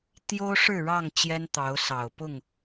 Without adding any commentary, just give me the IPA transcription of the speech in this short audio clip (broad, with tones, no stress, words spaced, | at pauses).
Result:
t̪jo˦ʊ̯ʂɻ̩˥˨ɻɑ˥˨ŋ t͡ɕjɛ˦nt̪ɑ˨˦ʊ̯sɑ˨˩ʊ̯ pʊ˥˨ŋ